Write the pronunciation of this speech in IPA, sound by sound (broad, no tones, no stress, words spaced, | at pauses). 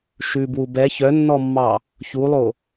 ʃʉbwu bɛ çœnːɔmːɑ | çulˠo